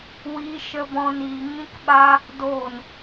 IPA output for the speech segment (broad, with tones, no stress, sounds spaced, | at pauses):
w iː˦ ʃ ə˦ b ɔ̃˦ n iː˧ ŋ ĩ˦ k ɓ a˦ | d oː˦˨ n